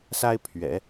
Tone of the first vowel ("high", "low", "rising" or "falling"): high